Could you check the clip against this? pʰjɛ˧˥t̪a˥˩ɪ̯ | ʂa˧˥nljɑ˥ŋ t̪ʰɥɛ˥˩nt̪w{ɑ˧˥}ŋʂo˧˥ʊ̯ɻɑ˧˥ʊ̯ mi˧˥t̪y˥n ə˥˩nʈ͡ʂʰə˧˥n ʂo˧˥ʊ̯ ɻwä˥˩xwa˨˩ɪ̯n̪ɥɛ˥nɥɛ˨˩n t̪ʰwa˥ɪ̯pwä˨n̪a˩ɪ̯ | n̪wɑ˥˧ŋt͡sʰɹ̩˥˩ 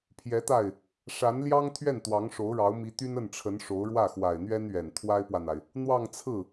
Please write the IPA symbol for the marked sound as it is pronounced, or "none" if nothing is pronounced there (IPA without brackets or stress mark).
ɑ˧˥